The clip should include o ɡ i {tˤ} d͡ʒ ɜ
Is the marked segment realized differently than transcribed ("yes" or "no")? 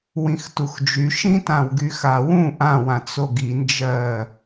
yes